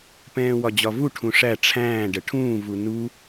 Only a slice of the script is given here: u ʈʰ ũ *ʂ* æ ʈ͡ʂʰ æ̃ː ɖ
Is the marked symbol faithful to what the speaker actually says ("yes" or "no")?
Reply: yes